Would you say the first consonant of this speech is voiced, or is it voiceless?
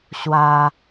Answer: voiceless